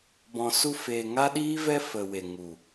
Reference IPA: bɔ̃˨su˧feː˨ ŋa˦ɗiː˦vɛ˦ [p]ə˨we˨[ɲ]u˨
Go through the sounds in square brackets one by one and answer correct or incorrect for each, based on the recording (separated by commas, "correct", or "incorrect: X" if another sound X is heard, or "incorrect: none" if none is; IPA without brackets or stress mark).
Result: incorrect: f, incorrect: ŋ